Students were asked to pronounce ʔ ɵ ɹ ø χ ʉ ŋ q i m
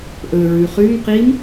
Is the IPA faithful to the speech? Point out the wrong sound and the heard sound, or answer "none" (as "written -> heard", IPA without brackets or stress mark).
ø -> ʉ